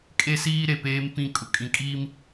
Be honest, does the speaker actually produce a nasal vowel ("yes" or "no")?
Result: yes